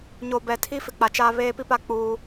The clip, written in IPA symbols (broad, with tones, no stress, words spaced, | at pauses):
ɲo˨bɛ˨tʰi˦ fɪ˨k͡pa˨t͡ʃaː˦ βeː˦pi˦pa˦ k͡puː˦